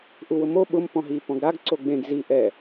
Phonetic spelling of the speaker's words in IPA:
ʔ u w ʊ m o ɓ ʊ m p ɔ̃ ɦ i p ɔ̃ ɡ ɾ a ɡ ǀ o ɡ͡b ẽ ɡ z i ʔ ɛ

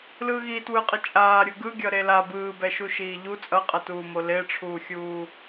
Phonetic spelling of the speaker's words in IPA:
l ɯː ɣ iː t w ɯ qʼ ʌ t͡ʃʼ aː ɾʲ u ɡ ɯ ɡʲ ʌ ɾ e l a b ɯː b ɛ ʃ u ʃ iː ʎ u t͡sʼ ʌ qʼ ʌ t uː m o l e ʈ͡ʂʰ uː xʲ uː

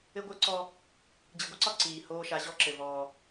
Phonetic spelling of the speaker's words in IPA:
ɘ˦ ɡʷ ə˞˦ ǀ ɔ˦ | d͡ʑ ɨ˨ ɡʷ ɘ˦ ǀ ɒ˦ ǀ iː˨ h oː˦ ʃ a˨˦ ʑ ɔ˦ ǁ ɘ˨ v ɔː˨

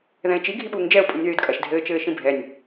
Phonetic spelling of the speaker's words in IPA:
ð ɛ̃ ɪ̯ t͡ʃ i ɡʱ i ɓ uː ŋ d͡ʒ ɛ ʊ̯ pʼ ĩ nʲ ð ɨː d kʼ ɐ ʃ dʱ ɘː t͡ʃ ɘː ʃ ĩ bʱ ɛ nʲ

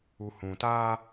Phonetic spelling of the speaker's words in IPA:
u˨ h ũ˨ t aː˦

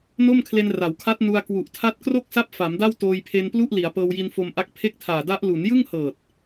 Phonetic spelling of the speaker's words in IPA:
n o˥˩ m kʰ l e˧ n r a˩˦ w kʰ a˦˥ t̚ n u˧ a̯ k w u˨˩ ʔ tʰ a˦˥ t̚ k r o˥˩ k̚ s a˦˥ p̚ f a˩˦ m d a˥˩ w t oː˧ j pʰ e˧ n p l u˥˩ ʔ l i˩˦ a̯ p ɤː˧ w j i˧ n f o˧ m ʔ a˦˥ k̚ pʰ e˥˩ k̚ tʰ aː˨˩ d a˦˥ ʔ l u˩˦ n j ɯ˥˩ ŋ h ɤː˨˩ t̚

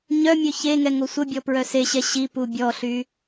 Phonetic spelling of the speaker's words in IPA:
ɲ œ mʲ ø ç e ŋ ɛ ŋ o sʷ ə bʲ ɔ p ɹ œ s e ɕ ɛ ɕ i p u bʲ ɔ ɬ y

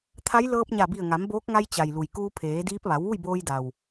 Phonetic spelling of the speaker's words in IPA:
t̪ʰ a˧˥ j l ɤː˧ p̚ ɲ a˧˩ b i˧˩ ə̯ ŋ a˩˧ m b oː˧˥ k̚ ŋ a˧ j t͡ɕ a˩ j l u˩ j k uː˧ pʰ eː˩˧ d iː˧˥ p̚ ʋ a˩˧ w ʋ u˥˨ j b oː˧ j d a˩ w

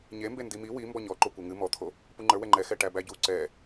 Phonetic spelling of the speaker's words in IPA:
ɲ e m b e n d i m i w i m b ɔ ɲ ɔ ǃ o kʷ ɛ ŋ ɨ m ɔ t̪ʰ o | p u ŋ͡ǃ ə˞ w ɛ ŋ͡ǃ ɛ x ɛ ʈ æ b æ ɟ u ǀ ɛ

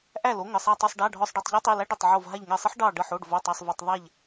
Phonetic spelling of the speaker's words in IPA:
ʔ æ˧˩ l o˩˧˩ ŋ ə˩˧˩ sˤ a˧˩ tˤ o˧˩ sˤ ɖ a˩˧˩ ɖʱ ɔ˧˩ sˤ ɖ ɛ˧˩ tˤ ʎ ɛ˦ tˤ i˩˧˩ l æ˦ ɖ ə˧˩ tˤ ʕ o˧˩ v ɦ a˧˩ ʎ ŋ ɛ˧˩ sˤ ə˦ ħ ɖ ɑ˧˩ ɖ ə˧˩ ħ o˩˧˩ ɖ v o˩˧˩ tˤ ɑ˩˧˩ sˤ v i˩˧˩ tˤ ðˤ æ˧˩ ʎ

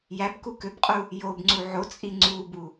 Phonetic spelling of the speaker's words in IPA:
j æ b k u k ø b qʼ u | j o b ŋ͡ǀ u ʕ o t͡sʼ i ŋ͡ǀ u b u

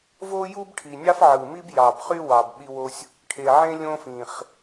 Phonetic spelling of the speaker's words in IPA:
v o˦ j u˦ b ʈʰ i˨˩ nʲ ɑ˦ f ʕ ɯ˨˩ m i˦ b j ɑ˨˩ b χ y˦ w ɑ˨˩ b ɓ i˦ w o˦ sʲ | ʈʰ e˨˩ ʕ ẽ˦ lʲ õ˦ f ĩ˨˩ χ

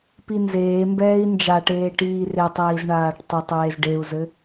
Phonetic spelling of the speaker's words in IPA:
p i n z eː m b ɛː i̯ n d͡ʒ a ʈ eː ʈ iː r e tˤ iː z ɳ aː ʈ tˤ ɘ tˤ eː z ɖ e u̯ z ɘ

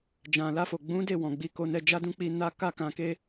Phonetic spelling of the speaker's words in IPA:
d͡ʒ ã˨ l a˧ f o˨ ɡ͡b ũ˨˦ d e˦˨ w ɔ̃˨ ɡ͡b i˧ k o˧ n ɛ˧ d͡ʒ a˦ d ũ˦ k͡p i˧ n a˦ k a˦ k ã˧ k e˦

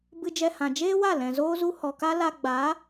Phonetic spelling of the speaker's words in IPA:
b ɨ˧ d͡ʒ ɛ˧ h ã˨ d͡ʒ eː˦ w a˦˨ l ɛ̃˨ z oː˦ z u˦ h ɔ˨ k a˦ l a˧ ɡ͡b a˨˦

